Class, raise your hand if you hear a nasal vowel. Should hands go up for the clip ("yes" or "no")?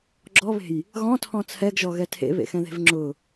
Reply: yes